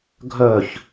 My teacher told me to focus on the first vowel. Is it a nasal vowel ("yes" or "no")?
no